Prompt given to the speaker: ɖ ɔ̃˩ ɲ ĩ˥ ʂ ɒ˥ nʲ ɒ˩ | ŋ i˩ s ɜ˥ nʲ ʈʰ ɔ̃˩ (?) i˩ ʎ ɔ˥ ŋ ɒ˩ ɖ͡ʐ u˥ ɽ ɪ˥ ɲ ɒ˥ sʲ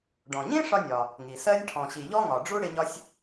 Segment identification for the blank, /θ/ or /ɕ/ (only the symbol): ɕ